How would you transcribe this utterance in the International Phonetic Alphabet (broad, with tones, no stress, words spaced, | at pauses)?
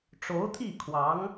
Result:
ʈ͡ʂo˧˥ʊ̯t̪ʰi˥˩kʰwɑ˧˥ŋ